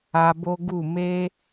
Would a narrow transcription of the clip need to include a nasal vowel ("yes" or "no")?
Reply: no